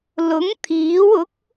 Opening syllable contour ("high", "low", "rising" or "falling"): rising